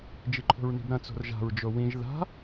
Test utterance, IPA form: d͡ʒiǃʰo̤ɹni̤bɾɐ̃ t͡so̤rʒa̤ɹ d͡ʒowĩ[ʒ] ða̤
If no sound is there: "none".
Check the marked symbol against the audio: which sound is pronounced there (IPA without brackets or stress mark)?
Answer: ʒ